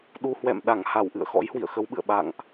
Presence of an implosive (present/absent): present